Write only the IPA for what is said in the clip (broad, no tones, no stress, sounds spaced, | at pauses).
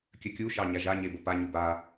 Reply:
kʲ ə kʲ u ʃ ɑ ɲ a ʒ a ɲ e b ə p a ɲ u b a